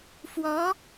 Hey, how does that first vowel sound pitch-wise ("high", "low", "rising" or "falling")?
rising